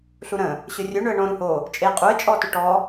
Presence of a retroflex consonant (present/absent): present